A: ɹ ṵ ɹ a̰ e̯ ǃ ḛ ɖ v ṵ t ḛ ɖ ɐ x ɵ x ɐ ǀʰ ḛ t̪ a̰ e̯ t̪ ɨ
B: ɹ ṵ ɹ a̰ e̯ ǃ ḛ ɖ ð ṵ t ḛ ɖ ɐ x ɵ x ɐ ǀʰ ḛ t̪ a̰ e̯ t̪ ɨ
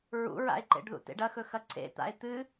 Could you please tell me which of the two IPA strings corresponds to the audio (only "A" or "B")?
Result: B